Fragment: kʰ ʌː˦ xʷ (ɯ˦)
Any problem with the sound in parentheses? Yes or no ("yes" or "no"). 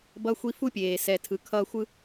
no